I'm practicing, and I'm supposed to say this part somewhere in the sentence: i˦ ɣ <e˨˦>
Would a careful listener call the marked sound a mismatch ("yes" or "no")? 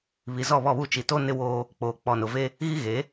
no